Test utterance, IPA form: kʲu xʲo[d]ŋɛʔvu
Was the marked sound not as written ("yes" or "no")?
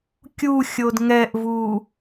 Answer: no